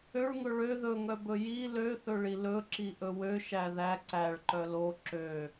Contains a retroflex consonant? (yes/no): yes